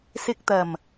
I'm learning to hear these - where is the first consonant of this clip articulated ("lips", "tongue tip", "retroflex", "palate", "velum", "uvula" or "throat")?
tongue tip